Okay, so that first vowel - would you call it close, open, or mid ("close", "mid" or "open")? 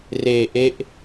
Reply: mid